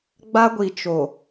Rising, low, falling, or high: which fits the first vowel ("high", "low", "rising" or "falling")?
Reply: high